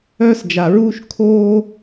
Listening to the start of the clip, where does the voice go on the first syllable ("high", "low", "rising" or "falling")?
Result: high